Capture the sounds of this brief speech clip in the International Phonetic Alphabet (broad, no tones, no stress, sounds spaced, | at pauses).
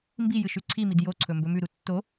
m b i j ɨ ʃ ʉ ǀʰ i m i d j o ǀʰ ɵ m b ɵ m ʉ ɾ u tː o